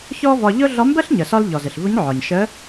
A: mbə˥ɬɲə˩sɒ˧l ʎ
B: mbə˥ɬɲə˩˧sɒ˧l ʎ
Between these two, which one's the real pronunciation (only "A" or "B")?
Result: A